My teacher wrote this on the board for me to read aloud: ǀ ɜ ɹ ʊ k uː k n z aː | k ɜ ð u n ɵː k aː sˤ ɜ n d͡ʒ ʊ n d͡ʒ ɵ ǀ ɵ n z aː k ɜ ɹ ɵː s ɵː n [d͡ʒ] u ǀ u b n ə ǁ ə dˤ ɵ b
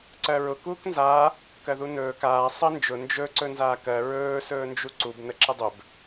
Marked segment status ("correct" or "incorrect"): correct